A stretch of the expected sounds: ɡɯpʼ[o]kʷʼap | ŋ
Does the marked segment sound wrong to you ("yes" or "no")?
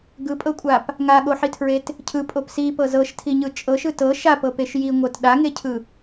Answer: yes